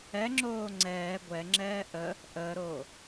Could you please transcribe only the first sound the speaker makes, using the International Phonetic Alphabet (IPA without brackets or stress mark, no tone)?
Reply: ɛ